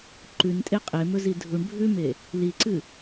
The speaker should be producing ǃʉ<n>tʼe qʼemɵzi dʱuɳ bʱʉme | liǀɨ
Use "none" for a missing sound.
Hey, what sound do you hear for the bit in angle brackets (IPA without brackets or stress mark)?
n